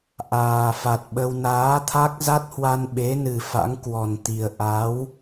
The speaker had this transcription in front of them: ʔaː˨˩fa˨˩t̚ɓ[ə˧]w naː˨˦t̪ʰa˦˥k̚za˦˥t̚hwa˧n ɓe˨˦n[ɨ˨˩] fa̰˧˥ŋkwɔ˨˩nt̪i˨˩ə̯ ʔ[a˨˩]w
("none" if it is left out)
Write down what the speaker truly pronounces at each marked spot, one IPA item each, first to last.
ə˧, ɨ˨˩, a˨˦

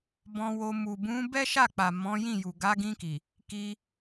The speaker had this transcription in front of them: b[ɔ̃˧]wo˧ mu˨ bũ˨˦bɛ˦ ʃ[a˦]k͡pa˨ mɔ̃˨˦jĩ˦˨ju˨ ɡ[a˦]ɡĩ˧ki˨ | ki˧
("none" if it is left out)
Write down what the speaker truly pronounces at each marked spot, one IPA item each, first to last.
ɔ̃˧, a˦˨, a˨˦

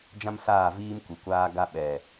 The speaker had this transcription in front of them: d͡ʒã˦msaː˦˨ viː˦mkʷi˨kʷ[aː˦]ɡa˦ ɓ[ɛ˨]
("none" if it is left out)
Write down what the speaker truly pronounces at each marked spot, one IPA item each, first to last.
aː˦, ɛ˨

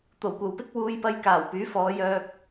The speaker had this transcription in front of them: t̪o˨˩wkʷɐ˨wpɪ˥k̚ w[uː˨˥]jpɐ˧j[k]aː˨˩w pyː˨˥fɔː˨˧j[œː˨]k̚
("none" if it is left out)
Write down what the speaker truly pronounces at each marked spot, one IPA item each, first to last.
uː˧, k, œː˧

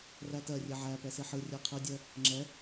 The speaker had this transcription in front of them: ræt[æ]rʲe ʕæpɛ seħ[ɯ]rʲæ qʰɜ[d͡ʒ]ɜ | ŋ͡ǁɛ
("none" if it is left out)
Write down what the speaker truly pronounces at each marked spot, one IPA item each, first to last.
ɜ, ɯ, dʲ

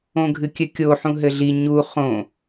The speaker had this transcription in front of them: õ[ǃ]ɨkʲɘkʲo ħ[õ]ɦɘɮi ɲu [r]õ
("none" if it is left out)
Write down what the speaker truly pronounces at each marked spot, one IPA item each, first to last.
ɡʱ, ũ, χ

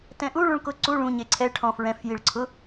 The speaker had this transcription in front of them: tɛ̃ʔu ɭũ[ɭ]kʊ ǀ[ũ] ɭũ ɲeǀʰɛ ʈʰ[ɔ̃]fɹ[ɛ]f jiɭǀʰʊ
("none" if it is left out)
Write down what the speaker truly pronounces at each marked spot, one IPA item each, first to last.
ɭ, u, ɔ̃, ɛ̃

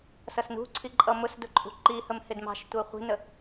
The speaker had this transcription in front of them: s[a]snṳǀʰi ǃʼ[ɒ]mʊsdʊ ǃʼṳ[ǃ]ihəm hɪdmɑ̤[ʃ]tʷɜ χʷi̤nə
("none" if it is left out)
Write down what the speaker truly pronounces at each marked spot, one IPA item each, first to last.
ʌ, ʌ, ǃ, ʃ

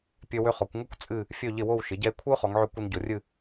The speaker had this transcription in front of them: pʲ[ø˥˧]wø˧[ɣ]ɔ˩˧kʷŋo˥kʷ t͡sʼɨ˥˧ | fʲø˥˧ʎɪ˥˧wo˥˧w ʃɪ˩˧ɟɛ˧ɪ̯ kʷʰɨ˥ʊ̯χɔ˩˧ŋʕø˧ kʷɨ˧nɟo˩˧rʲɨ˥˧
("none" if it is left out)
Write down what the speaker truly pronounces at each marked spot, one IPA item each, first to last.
ø˧, χ

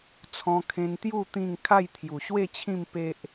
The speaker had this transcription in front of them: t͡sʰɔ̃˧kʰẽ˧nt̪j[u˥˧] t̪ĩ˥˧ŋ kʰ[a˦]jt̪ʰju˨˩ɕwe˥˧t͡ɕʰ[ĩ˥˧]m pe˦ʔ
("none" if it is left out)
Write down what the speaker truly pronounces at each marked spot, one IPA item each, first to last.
u˥˧, a˥˧, ĩ˥˧

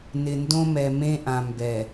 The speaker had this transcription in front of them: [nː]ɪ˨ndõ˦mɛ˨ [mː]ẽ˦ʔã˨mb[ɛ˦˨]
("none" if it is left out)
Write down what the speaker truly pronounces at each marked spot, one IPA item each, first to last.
n, m, ɛ˨

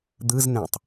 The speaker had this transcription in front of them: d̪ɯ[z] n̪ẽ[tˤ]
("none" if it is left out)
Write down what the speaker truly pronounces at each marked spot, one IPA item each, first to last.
z, tˤ

